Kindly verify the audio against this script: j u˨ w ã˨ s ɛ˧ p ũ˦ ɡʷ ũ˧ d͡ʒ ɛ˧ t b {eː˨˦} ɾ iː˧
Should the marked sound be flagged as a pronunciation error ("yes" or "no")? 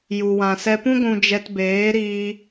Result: no